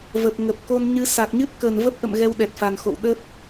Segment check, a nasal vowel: absent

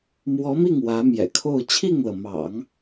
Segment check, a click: absent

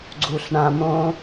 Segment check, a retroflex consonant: present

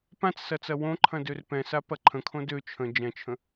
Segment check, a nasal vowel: present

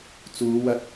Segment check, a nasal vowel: absent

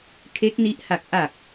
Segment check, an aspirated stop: present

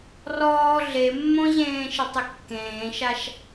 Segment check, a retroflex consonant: absent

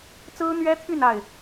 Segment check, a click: absent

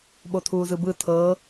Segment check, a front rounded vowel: absent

